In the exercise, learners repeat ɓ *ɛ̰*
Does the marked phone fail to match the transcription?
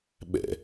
no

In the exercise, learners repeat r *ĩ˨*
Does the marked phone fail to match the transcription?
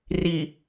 yes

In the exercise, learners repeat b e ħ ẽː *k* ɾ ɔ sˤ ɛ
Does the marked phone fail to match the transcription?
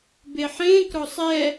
no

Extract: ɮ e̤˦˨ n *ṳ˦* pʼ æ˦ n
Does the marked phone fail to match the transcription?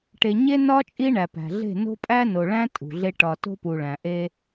yes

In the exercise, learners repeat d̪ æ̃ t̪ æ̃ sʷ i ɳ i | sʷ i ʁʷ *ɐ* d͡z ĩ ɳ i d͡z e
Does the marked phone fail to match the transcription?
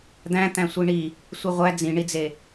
yes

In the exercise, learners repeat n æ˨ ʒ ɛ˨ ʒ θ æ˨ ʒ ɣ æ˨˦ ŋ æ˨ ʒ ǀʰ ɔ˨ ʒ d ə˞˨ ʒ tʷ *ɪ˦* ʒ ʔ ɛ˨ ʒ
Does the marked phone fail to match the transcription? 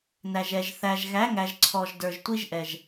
yes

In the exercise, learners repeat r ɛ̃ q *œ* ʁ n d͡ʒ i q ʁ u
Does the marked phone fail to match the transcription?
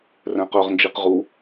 no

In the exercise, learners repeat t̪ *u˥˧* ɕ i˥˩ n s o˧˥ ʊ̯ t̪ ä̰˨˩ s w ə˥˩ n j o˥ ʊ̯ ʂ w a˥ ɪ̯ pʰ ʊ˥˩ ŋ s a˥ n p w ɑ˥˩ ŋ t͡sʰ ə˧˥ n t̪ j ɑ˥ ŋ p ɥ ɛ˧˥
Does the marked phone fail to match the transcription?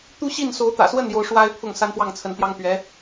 yes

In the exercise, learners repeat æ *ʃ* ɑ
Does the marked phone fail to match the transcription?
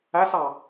yes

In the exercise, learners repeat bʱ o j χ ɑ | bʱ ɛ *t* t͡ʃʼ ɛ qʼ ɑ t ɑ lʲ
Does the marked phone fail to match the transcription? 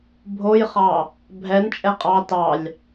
yes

